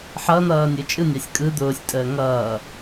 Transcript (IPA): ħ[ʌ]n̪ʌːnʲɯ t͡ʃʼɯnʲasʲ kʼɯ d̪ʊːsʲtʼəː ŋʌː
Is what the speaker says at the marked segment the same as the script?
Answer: yes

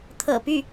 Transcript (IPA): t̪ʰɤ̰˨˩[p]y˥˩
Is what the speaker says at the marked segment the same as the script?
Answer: yes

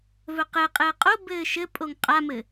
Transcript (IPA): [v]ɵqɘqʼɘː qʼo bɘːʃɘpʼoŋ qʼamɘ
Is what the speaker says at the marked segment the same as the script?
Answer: yes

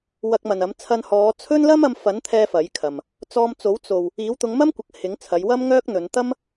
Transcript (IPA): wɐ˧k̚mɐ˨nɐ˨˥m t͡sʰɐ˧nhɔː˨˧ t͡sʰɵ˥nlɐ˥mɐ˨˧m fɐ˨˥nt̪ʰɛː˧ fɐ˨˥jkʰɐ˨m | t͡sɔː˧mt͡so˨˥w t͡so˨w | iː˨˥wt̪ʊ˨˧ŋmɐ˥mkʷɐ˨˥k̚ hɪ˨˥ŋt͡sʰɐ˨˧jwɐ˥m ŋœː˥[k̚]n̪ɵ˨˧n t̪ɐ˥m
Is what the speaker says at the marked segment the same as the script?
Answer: yes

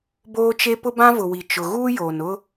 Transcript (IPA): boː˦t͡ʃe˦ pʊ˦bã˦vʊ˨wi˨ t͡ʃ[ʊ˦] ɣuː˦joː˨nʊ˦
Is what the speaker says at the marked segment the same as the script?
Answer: no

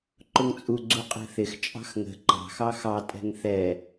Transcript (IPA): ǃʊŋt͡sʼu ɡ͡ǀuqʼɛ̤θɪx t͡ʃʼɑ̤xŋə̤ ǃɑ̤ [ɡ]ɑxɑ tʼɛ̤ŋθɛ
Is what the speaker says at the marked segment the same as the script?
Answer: no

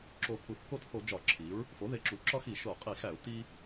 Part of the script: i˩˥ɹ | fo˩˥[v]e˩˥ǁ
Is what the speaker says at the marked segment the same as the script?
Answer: no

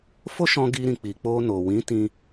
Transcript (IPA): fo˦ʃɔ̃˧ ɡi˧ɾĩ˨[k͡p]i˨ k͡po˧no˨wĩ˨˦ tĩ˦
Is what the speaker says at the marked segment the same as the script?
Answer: yes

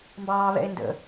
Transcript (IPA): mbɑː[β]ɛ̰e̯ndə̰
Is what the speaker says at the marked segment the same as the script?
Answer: yes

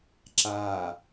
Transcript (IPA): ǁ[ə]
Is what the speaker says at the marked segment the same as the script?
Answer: no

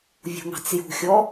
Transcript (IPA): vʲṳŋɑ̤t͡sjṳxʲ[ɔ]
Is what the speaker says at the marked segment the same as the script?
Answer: yes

